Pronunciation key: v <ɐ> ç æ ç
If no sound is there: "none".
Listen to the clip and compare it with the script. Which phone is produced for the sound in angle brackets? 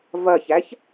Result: ɐ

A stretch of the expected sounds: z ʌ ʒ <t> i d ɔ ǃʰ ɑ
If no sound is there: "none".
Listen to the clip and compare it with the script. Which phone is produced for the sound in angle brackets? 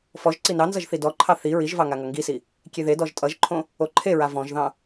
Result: θ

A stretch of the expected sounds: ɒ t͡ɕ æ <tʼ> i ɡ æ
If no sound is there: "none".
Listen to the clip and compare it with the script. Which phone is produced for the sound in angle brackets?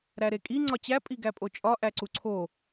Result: pʼ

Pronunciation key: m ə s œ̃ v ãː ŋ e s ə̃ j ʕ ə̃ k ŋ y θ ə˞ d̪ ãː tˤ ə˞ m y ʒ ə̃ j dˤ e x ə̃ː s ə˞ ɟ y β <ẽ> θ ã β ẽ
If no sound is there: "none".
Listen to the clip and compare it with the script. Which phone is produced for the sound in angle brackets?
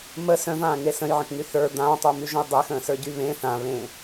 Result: ẽ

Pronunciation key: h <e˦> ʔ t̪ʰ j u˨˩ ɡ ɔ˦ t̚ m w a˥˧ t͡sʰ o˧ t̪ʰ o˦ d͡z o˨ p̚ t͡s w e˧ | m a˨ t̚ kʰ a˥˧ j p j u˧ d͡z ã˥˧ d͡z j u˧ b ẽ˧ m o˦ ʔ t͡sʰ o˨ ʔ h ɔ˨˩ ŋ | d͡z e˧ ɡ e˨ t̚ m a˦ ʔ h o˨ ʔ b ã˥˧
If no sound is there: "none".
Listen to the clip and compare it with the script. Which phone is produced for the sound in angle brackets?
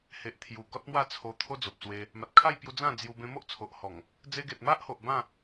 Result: e˨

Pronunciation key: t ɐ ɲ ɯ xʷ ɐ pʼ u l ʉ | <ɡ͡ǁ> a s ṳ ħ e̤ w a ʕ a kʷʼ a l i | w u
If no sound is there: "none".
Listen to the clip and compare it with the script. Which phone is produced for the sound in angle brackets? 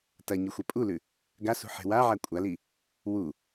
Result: ɡ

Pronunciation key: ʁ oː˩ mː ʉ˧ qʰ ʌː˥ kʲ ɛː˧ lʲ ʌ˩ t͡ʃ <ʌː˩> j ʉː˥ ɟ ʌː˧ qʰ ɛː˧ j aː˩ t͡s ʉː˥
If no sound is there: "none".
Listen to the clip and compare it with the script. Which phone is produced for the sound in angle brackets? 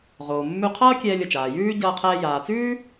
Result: aː˩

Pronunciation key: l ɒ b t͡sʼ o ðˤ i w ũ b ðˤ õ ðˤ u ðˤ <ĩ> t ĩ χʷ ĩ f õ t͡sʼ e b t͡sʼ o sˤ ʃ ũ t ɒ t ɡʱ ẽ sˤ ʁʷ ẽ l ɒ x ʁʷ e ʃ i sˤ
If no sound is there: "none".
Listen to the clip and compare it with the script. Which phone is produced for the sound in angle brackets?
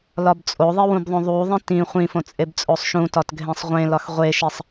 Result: ĩ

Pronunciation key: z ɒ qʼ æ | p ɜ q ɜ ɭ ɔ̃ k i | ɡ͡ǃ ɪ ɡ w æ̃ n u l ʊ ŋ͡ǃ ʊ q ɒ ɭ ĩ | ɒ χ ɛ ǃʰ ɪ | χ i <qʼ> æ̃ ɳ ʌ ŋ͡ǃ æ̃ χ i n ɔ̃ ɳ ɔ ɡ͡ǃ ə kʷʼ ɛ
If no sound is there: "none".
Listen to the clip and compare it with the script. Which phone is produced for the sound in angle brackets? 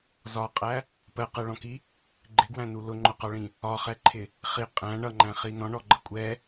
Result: qʼ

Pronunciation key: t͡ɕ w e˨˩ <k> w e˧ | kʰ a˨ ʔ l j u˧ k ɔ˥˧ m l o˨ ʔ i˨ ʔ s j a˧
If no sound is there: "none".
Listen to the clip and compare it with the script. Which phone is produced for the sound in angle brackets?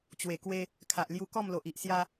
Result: k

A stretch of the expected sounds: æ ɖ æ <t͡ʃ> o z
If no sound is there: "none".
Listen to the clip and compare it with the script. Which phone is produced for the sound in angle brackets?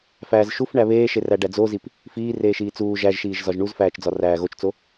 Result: d͡z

